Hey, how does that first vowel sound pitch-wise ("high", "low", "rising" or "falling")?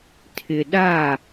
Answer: low